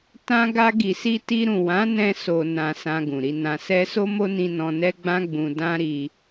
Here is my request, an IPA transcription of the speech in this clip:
t ã˧ ɡ a˧ ɡ i˨ s i˧ t i˧ ɾ ũ˨ w ã˨˦ n ɛ̃˧ s o˨ n ã˨ s ã˧ ɡ ũ˨ ɾ i˧ n ã˧ s ɛ˧ s o˦ m o˦ n ĩ˧ n ɔ̃˧ n ɛ˦ ɡ͡b ã˦ ɡ͡b ũ˧ d ã˦ ɾ i˧

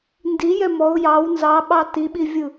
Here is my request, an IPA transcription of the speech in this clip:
n d i j ɛ m ɔ ʊ̯ j ɑ w n z ɑ ɓ ɑ t i ɓ i vʲ ɯ

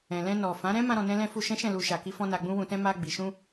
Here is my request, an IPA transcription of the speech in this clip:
ɛ̃˨ l ɛ̃˧ n ɔ˨ f ã˨˦ ɾ ɛ̃˦ m ã˧ ɾ ɔ̃˨ n ɛ̃˧ l ɛ̃˧ f u˧ ʃ ɛ̃˦ ʃ ɛ̃˦˨ l u˧ ʃ a˨ k i˧ f ɔ̃˧ n a˨ ɡ͡b ũ˧ w ũ˨ t ɛ̃˧ m a˧ ɡ͡b i˨ ʃ ũ˧

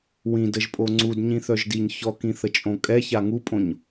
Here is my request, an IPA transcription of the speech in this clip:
w ĩ d ə ʒ pʼ o ŋ͡ǀ u d ɲ ĩ θ œ ʒ d i ɲ ç ɔ k ĩ θ ə t͡ʃʼ õ kʼ ɛ ç a ŋ u pʼ õ ɲ

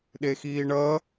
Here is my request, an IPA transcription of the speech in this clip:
ɗ e x iː ɳ ʌ

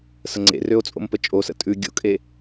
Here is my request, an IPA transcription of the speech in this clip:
s ə ŋ͡ǀ ḛ r ø o̯ t͡sʼ o̰ m p ə t͡ʃʼ o s ə̰ tʼ ʉ ɡʲ o̰ kʼ e

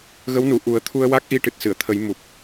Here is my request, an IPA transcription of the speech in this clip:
ɣ ə˧˥ w n u˨˩˨ ʔ u˨˩˦ ə̯ t̪ʰ u˧ ə̯ w a˦˥ k̚ ʔ i˧ ʈ ɨ˨˩ t̚ s ɨ˨˩˨ ə̯ t̪ʰ ə˨˩˦ j m u˨˩ p̚

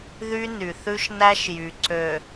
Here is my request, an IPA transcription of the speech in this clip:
ð y˦ n y˨ θ ʉ˦ ʃ n æ˦ ʃ j y˨ ǀ ø˨

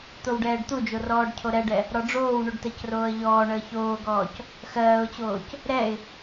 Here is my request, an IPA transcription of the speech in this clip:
t̪ o w ɖ ɛː ɖ t̪ u d͡ʒ o r ɔː ɖ cʰ o ɾ ɛ ɖ ɛ | ɾ ɔ ɖ͡ʐ oː w ɳ u ɖ t ɜ c r oː ə̯ ʎ ɔː ɳ əː ç oː ɡ ɔː c | x ɜː ʊ̯ t͡ɕ oː c | ɾ ɛ ɪ̯

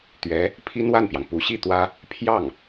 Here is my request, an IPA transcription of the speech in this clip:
t̪ ɥ ɛ˧˥ | pʰ i˥ n w a˥˩ n p j ɑ˩ ŋ p u˧˥ ɕ i˥˩ t̪ w ä˥ | pʰ j ɑ˥˩ ŋ

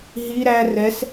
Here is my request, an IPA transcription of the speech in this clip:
ɦ i ɾ æ r ɛ s

